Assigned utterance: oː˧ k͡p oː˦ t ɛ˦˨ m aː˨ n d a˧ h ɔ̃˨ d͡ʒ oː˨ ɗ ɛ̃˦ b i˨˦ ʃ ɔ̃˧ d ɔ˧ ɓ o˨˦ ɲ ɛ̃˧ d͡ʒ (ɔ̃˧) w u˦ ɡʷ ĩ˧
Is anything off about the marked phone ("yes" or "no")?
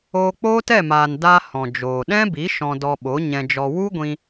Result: yes